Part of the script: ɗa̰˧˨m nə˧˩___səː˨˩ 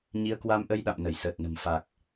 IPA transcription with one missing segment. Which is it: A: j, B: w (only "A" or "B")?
A